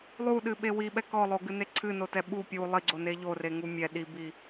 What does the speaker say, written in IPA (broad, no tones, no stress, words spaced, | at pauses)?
lˠuɗɨɓe wiɓɛ kɔlˠoɡɨne ǀʰɨnotɛ ɓu pʲu lˠiɡ͡ǀone ʎoreŋu mʲɛ ɗibi